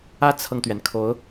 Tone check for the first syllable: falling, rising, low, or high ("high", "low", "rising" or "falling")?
high